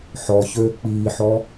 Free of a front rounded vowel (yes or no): no